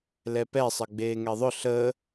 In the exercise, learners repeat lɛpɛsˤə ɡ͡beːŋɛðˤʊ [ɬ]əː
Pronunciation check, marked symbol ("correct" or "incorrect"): correct